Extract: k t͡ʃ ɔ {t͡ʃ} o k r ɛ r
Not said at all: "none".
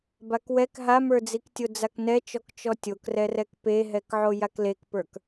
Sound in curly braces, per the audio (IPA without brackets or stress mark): tʲ